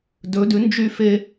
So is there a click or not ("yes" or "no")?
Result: no